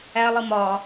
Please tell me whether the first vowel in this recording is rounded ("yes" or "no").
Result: no